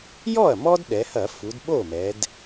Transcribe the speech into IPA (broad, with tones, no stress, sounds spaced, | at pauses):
j ɔ˥˩ ɐ̯ m ɔ˥ d ɗ ɛ˩˧ h ɐ˧˩˧ f u˩˧ d ɓ o˥˩ m ɛ˩˧ d